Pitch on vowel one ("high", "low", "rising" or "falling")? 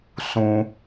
high